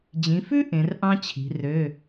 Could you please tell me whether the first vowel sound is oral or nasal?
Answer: nasal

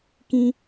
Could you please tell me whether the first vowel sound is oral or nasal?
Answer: nasal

